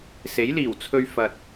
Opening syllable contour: rising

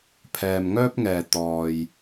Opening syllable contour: low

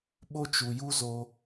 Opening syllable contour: high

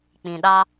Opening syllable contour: low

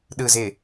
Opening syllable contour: low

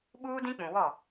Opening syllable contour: high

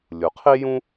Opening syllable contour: low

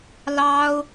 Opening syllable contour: high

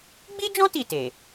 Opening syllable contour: high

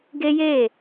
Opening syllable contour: high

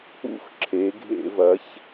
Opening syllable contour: falling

